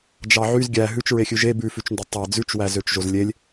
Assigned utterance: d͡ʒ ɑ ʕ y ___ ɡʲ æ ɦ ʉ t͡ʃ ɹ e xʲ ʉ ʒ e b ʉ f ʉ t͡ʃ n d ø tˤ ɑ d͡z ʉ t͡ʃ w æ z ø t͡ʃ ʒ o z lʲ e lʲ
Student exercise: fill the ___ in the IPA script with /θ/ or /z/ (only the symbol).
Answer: z